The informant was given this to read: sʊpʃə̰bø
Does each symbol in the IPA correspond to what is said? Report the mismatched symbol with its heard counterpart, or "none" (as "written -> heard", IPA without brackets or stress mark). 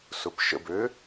none